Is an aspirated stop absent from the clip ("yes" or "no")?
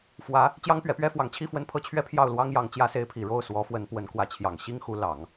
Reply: no